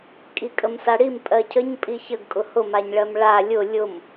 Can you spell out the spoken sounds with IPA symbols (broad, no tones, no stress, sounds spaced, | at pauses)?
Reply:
kʼ i kʼ ə m s a ɽ i m pʼ ɜ cʰ ə ɲ pʼ i ç ə ɡ kʼ ʊ h ʊ m a ɲ ɭ ɜ m ɭ a lʲ ʊ lʲ ʊ m